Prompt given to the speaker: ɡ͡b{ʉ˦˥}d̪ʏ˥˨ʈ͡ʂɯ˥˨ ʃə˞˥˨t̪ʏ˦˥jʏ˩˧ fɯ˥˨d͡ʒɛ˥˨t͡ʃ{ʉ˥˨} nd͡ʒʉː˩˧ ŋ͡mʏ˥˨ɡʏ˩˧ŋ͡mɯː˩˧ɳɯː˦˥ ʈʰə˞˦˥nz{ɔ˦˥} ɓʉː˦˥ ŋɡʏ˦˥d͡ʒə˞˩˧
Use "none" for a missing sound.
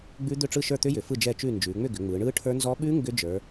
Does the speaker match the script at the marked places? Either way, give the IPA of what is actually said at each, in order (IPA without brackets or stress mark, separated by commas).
ʉ˦˥, ʉ˥˨, ɔ˦˥